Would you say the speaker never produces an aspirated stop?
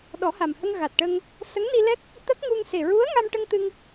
yes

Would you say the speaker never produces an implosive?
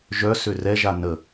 yes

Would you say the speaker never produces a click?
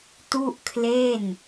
yes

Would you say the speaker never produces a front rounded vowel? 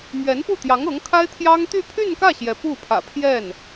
no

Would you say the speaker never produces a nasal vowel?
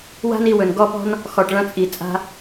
no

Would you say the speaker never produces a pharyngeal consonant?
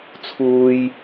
yes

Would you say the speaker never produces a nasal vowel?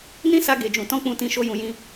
no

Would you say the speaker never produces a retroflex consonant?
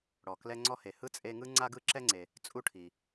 no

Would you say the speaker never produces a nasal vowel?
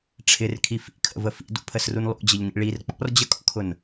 yes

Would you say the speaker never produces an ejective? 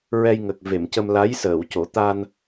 yes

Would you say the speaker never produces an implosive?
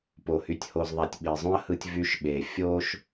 no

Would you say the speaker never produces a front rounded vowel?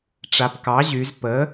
no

